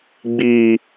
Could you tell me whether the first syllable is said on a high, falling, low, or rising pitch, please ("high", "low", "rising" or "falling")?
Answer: low